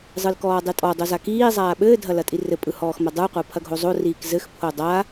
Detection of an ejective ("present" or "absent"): present